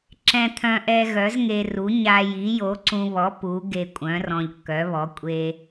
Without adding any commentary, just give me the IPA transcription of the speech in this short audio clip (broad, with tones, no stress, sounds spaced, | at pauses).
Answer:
ǁ ɛ̃˧ t̪ʰ œ̃˧ ʔ ɛ˧ ɣ œ˨˥ z ŋ e˧ r u˨˥ ɲ a˧ j i˨˥ j o˨˥ ǀ ũ˧ β ɔ˨˥ p u˨˥ ɡ e˧ kʷʼ œ̃˨˥ r ɔ̃˧ ʎ kː œ˨˥ β ɔ˨˥ kʷʼ e˧